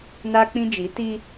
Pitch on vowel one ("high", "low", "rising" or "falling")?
high